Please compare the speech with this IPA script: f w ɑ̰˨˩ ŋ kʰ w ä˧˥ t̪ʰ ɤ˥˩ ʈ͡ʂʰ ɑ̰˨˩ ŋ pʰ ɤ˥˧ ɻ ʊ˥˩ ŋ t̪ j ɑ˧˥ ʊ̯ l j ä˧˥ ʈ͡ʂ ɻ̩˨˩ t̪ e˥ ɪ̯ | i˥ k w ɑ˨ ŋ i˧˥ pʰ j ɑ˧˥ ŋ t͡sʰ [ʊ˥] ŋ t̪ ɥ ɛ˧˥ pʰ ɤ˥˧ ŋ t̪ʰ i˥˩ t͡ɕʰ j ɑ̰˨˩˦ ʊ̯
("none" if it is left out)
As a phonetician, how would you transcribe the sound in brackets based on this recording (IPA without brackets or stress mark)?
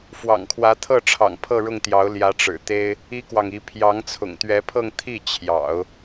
ʊ̰˨˩